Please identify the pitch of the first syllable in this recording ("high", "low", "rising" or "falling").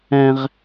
low